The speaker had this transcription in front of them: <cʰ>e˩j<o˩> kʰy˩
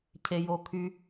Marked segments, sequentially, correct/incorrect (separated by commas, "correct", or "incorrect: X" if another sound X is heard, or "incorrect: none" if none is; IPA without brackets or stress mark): correct, correct